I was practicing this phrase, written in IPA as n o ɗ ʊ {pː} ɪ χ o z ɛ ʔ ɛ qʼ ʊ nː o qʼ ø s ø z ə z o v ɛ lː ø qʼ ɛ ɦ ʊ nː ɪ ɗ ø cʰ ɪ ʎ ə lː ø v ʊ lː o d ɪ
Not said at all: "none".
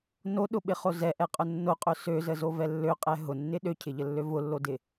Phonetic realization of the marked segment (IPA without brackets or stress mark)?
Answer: ɓ